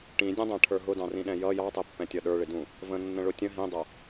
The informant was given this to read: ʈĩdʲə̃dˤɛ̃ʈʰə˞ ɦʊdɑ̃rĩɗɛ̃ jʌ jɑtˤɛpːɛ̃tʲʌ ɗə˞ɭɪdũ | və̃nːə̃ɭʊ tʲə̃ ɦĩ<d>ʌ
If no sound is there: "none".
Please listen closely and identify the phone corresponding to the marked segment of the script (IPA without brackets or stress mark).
dˤ